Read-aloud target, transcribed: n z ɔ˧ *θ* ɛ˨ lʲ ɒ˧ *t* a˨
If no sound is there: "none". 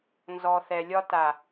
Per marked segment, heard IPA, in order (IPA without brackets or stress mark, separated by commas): θ, t